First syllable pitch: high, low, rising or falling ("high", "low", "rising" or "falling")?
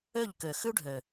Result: falling